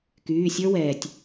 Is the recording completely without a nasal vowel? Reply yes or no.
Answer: yes